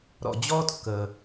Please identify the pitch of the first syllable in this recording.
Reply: low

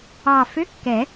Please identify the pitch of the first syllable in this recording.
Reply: low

